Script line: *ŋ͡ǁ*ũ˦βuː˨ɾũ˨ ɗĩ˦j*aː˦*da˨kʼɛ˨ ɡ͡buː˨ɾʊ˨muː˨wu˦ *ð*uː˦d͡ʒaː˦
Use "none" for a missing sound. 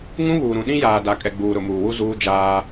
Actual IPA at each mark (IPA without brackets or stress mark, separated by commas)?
ŋ, aː˨, z